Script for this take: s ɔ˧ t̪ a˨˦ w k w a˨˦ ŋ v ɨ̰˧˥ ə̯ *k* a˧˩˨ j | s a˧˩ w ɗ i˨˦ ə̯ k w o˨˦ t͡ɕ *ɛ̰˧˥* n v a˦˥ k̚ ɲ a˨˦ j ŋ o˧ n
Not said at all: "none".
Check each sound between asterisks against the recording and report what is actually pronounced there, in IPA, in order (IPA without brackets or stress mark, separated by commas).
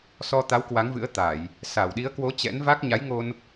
t̪, ɛ̰˧˥